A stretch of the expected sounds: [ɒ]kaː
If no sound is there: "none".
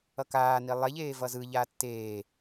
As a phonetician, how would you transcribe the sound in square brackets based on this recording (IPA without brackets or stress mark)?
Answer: ʌ